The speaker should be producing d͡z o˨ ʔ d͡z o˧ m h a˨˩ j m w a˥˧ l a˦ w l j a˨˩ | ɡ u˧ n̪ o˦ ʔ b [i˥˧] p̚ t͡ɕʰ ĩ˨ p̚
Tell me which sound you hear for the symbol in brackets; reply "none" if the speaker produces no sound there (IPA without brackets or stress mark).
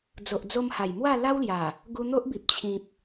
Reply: i˨